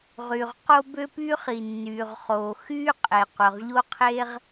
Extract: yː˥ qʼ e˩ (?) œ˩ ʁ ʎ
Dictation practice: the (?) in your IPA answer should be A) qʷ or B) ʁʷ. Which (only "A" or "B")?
A